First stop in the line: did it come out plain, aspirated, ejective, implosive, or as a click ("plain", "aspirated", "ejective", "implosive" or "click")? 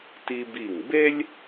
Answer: plain